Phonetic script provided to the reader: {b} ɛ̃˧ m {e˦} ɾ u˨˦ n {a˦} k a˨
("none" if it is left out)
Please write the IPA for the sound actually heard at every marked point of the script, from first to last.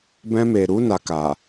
b, e˨, a˧

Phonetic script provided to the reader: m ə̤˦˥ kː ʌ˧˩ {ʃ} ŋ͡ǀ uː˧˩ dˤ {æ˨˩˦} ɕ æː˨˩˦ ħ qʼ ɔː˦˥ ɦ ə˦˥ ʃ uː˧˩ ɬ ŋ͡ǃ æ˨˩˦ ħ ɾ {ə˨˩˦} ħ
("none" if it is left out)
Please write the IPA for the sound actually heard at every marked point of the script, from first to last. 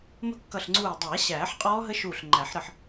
ɬ, æ˨˩˦, ə˧˩

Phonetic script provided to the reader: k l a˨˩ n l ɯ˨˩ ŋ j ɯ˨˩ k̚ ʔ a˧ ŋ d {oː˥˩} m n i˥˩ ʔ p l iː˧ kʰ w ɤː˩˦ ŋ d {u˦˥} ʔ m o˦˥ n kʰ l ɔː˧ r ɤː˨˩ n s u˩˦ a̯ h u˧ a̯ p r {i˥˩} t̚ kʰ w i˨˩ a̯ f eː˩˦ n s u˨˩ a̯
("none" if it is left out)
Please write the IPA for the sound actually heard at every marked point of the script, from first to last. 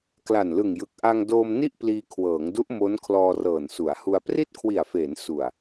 oː˧, u˦˥, i˥˩

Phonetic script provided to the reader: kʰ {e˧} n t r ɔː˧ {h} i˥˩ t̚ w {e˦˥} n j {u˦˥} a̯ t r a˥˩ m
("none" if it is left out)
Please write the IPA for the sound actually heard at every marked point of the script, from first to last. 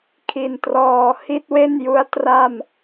i˧, h, e˥˩, u˦˥

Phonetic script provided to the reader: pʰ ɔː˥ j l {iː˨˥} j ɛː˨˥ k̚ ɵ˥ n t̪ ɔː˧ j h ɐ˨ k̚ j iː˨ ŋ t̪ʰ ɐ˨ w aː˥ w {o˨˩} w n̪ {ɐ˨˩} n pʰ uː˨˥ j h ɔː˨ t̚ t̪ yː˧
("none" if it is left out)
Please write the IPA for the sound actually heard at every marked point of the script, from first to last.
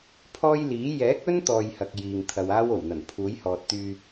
iː˨˥, o˨˩, ɐ˨˩

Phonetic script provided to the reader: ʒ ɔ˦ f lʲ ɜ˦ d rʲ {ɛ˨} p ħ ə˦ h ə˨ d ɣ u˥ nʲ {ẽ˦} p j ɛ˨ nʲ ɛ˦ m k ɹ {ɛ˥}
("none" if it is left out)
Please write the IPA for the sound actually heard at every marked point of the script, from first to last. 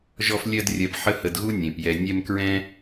ɜ˨, ẽ˩, ɛ̃˥

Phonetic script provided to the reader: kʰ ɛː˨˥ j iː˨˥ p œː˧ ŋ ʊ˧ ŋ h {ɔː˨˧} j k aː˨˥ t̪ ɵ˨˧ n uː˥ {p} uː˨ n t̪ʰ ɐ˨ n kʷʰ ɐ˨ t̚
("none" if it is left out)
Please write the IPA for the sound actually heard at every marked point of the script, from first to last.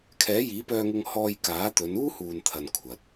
ɔː˧, h

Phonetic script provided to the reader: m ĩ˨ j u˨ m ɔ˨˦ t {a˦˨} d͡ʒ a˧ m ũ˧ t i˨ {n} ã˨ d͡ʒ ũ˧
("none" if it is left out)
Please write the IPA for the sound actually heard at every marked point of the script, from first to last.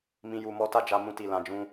a˦˨, l

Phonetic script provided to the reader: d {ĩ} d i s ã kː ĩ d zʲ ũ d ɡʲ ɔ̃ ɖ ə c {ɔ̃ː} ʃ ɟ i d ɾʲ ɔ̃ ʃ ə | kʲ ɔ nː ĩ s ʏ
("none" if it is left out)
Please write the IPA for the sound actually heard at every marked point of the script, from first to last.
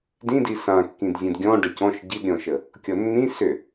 ĩ, ɔ̃

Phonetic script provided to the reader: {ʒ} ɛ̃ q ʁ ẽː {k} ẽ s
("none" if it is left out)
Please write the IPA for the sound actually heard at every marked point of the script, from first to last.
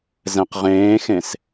z, x

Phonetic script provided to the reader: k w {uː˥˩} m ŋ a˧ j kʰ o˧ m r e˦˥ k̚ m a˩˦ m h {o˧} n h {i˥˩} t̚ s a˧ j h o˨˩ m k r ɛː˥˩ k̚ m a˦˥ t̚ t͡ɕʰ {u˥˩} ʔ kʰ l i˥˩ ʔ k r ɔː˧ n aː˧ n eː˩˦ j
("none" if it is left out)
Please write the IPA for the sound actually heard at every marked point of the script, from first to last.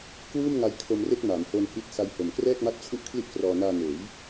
uː˥˩, o˧, i˦˥, u˥˩

